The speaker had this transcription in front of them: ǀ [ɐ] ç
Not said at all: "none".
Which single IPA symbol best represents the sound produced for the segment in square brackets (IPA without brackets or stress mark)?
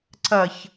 ɐ